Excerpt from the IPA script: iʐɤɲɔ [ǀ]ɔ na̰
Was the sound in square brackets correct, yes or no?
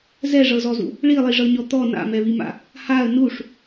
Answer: no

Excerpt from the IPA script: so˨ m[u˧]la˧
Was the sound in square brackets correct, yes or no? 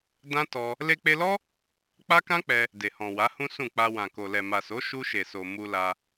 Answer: yes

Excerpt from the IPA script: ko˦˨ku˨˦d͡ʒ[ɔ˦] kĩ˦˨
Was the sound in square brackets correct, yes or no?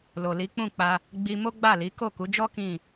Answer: yes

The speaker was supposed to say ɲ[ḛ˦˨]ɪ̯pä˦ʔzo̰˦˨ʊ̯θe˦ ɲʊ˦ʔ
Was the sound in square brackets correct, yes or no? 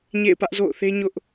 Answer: yes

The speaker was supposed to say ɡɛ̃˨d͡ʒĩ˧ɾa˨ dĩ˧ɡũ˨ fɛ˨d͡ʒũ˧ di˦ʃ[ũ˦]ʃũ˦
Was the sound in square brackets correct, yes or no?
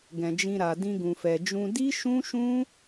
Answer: yes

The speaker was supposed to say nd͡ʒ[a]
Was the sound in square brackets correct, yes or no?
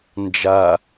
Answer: yes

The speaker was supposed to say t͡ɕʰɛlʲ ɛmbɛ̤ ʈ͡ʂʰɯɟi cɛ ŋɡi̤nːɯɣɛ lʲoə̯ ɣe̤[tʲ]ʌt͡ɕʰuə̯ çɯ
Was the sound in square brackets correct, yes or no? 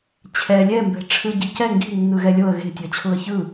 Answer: yes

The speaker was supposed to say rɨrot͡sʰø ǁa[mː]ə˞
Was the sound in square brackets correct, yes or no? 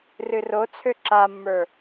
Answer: yes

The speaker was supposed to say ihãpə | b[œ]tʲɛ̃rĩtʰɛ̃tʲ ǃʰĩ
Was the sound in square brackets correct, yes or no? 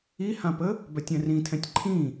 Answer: yes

